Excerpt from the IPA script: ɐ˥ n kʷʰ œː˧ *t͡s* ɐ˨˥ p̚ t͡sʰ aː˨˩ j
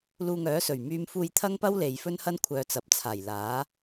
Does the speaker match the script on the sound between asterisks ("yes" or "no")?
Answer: yes